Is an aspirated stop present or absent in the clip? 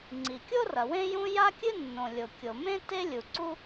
absent